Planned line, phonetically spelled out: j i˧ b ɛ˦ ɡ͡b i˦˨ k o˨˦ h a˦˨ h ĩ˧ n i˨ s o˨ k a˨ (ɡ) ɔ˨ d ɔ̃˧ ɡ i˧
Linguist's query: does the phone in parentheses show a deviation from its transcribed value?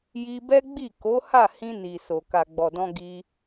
yes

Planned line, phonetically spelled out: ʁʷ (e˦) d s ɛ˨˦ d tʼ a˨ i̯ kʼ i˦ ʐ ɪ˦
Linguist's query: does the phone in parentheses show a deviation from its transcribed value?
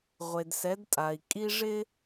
yes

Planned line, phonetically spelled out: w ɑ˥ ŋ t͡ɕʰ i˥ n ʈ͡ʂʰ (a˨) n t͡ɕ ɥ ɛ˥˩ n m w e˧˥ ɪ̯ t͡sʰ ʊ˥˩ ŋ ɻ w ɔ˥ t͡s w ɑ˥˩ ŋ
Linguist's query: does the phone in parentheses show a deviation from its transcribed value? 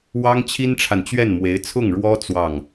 no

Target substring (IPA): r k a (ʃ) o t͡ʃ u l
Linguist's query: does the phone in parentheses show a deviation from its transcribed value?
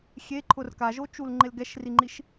yes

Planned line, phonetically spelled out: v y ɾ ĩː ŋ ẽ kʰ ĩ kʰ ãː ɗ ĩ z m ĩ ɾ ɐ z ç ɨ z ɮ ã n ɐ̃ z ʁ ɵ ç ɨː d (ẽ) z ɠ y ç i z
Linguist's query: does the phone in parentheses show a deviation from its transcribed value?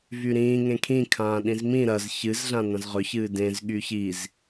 no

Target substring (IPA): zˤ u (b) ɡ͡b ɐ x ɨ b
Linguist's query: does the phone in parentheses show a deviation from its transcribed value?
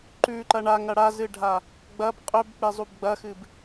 no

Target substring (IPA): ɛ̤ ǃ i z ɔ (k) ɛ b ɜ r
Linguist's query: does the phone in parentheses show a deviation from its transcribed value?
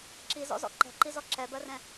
yes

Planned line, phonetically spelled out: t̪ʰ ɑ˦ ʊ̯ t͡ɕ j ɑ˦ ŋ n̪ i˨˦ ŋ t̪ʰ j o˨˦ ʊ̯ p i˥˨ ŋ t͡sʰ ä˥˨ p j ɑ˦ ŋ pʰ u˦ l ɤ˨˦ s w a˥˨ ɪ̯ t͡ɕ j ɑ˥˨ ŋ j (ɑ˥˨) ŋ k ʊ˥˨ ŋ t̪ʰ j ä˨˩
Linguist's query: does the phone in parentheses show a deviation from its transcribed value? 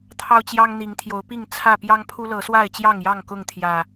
no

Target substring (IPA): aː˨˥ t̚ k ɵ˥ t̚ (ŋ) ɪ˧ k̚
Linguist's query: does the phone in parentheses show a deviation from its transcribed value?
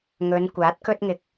no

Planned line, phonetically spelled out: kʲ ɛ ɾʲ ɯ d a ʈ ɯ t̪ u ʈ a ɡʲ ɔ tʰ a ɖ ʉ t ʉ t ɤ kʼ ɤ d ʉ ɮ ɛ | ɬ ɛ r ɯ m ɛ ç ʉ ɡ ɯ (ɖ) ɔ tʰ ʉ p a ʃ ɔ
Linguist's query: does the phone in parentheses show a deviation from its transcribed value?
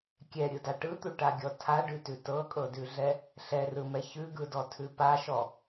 yes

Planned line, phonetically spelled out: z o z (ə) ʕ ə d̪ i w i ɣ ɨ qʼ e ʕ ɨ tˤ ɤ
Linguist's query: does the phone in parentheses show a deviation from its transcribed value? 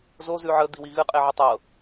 yes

